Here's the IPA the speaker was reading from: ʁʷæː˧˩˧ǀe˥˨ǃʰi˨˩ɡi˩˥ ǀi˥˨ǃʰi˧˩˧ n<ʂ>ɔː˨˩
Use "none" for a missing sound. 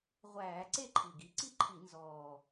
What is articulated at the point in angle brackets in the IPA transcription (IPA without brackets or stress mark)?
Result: z